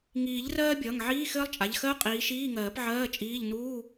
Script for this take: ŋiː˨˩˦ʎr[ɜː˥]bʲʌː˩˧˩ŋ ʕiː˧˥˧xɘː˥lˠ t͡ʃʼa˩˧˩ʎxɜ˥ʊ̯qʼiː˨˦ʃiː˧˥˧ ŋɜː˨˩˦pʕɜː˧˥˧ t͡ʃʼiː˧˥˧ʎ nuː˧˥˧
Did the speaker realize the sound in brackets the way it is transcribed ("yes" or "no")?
yes